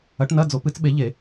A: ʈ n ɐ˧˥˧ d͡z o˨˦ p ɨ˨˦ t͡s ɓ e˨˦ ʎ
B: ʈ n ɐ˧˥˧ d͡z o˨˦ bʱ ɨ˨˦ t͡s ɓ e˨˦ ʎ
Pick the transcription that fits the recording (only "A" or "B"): A